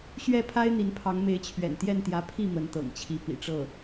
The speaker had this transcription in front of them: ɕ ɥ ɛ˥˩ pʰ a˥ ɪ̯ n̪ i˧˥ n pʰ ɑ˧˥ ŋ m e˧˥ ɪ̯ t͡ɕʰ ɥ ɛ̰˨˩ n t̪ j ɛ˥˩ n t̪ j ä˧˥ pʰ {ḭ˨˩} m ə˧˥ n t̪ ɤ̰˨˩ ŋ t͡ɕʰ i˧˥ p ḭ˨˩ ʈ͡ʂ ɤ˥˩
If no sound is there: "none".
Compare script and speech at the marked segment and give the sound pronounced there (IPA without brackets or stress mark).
i˥˩